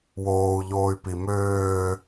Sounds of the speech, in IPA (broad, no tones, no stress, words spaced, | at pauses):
woːu̯ʎoːy̯pi møː